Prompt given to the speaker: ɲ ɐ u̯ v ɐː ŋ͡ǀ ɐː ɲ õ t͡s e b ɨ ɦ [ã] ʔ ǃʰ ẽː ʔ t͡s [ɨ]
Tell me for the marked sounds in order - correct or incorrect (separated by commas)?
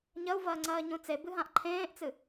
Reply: correct, correct